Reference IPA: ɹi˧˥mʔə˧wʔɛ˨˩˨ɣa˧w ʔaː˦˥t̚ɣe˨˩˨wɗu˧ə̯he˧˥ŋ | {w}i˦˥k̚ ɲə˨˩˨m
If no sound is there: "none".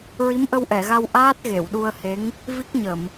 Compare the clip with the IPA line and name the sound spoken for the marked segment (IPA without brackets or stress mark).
v